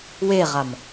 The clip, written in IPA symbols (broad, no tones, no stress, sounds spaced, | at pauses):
w e ʁ a m